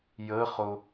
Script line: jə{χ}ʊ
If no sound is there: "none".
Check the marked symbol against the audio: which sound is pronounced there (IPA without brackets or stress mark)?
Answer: χ